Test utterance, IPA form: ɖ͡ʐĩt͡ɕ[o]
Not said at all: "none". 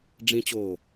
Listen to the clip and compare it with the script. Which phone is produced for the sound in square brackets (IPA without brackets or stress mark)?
oː